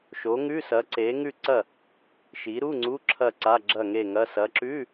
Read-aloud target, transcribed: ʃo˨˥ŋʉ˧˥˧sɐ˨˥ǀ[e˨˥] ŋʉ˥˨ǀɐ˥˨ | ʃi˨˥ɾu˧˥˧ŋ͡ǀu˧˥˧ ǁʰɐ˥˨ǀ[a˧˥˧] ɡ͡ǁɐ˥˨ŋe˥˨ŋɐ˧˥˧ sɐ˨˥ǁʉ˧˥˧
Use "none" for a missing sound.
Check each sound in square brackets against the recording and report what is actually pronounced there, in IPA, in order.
e˨˥, a˧˥˧

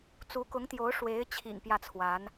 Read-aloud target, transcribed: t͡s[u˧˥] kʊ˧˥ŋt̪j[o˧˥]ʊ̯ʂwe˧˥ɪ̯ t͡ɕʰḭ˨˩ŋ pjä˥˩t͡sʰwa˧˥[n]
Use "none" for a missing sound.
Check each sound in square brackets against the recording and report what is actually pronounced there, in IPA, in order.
u˧˥, o˧˥, n

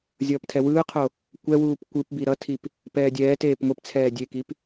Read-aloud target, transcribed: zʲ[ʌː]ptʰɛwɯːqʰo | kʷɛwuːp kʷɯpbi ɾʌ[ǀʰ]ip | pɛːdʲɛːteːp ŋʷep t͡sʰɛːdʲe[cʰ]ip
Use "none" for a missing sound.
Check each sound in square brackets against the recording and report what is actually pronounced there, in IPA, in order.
ʌː, tʰ, k

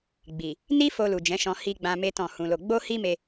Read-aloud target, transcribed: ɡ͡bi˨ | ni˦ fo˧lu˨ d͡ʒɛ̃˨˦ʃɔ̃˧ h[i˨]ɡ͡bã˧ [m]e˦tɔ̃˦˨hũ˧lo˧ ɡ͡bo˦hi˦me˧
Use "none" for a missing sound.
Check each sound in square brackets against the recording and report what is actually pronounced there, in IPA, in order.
i˧, m

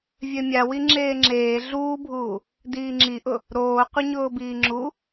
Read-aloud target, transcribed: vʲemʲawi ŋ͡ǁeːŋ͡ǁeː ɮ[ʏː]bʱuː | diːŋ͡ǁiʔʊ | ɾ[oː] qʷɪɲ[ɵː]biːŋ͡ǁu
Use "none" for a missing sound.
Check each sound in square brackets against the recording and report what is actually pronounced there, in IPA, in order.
uː, oː, ʊː

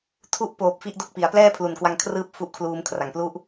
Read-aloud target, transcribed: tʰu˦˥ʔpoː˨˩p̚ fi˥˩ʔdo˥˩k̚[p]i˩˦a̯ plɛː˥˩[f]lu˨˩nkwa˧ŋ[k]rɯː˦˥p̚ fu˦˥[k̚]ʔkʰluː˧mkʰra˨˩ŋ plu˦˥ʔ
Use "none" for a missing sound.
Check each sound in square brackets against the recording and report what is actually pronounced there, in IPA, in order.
p, pʰ, kʰ, none

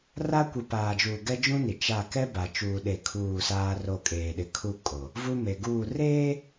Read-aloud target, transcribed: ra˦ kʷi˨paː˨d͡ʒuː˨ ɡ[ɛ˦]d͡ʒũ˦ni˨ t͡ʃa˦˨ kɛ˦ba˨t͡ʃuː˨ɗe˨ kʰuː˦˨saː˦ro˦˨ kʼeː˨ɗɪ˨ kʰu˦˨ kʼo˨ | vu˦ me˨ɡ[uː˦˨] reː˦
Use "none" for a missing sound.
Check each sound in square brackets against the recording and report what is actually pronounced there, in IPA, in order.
ɛ˦, uː˦˨

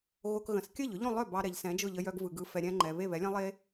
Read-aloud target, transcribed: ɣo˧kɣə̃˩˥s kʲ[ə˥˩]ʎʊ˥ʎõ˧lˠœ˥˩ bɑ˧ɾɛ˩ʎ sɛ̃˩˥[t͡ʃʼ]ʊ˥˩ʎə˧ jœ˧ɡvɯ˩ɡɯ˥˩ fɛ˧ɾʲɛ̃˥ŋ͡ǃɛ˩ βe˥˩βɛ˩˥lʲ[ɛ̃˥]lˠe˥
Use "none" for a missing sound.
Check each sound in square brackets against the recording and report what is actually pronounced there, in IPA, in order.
ə˥˩, d͡ʒ, ɛ̃˥

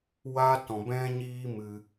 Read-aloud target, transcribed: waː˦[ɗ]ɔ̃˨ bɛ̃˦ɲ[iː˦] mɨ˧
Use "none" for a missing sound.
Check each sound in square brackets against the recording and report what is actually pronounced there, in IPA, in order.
t, iː˦

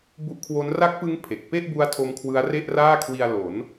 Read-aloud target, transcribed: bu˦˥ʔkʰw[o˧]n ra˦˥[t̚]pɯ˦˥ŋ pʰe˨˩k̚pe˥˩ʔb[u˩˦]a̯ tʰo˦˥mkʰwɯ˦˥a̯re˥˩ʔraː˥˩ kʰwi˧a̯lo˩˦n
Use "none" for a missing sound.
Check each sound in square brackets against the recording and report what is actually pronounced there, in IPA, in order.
o˦˥, k̚, u˦˥

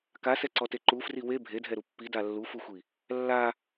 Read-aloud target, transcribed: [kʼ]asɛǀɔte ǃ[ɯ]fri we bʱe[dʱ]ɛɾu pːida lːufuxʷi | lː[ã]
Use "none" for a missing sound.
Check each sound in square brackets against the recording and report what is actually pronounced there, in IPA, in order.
k, u, dʱ, a

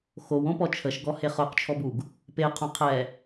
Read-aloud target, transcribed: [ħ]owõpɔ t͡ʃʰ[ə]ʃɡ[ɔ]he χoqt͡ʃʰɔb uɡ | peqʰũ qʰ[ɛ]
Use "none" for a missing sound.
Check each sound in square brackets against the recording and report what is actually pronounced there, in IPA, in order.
x, ə, ɔ, ɛ

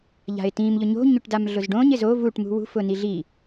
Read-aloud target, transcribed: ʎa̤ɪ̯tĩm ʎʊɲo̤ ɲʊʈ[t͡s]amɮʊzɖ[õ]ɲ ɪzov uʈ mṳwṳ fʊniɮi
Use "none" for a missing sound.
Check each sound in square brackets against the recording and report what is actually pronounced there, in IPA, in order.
d, õ

